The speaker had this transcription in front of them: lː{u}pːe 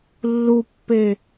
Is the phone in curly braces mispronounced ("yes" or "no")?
no